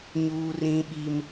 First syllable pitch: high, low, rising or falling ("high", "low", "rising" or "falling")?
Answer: high